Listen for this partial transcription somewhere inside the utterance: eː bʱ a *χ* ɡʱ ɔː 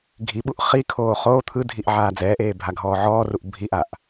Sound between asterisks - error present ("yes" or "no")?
yes